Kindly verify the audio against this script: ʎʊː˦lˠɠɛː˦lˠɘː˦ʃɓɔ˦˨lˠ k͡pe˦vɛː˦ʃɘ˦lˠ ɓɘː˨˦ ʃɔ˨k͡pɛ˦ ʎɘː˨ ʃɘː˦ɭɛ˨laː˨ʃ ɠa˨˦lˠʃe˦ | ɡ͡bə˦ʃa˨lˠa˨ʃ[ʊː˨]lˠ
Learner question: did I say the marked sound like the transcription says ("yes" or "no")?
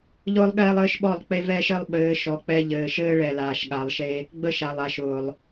yes